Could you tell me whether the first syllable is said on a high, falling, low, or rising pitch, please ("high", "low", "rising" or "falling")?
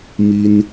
high